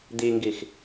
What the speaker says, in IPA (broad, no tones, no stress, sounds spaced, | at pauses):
d̪ i ŋ ɡ i x